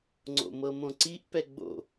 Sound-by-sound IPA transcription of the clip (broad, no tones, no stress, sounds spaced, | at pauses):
ŋ͡ǀ o̰ m ɤ m õ ǀ i ʔ p ɛ ɡ͡b o̰